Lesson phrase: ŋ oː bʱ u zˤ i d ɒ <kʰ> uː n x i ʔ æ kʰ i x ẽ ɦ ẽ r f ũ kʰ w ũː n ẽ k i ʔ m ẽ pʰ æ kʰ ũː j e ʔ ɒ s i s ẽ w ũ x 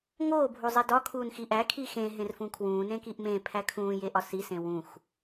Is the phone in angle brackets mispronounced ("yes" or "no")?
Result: no